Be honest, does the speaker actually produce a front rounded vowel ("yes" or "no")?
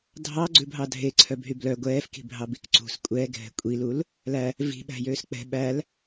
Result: yes